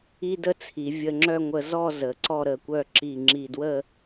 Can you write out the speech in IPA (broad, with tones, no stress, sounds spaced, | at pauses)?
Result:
i˥ d ə˥ t͡sʰ i˩˧ vʲ ə˧ ŋ͡ǁ œ˥˧ ŋʷ ə˧ z ɔ˥˧ z ə˩˧ ǀ ɔ˥˧ ɾ ə˧˩ kʷ œ˥˧ ǁ i˧˩ ŋ͡ǁ i˧˩ d w ə˥˧